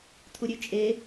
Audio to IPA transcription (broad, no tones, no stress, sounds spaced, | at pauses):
t̪ʰ u ɾʲ ʉ t͡ʃʼ e